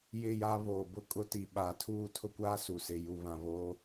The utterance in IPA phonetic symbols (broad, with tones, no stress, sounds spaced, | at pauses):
j ɪ˦˨ j a˦ β oː˨ b ʊ˦ kʼ ʊ˦ t i˨ ɓ aː˨ tʰ uː˦˨ tʰ ʊ˦ kʷ aː˦ s u˨ s ɪ˨ j u˨ β ã˨ β oː˦